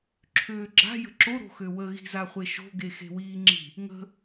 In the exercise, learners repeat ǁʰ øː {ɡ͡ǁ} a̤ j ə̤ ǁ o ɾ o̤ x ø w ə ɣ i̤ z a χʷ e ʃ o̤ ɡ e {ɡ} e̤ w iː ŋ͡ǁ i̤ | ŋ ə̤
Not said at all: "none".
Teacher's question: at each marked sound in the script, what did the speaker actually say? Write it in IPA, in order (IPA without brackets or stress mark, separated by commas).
ɡ͡ǁ, x